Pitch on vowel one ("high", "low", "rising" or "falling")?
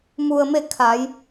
low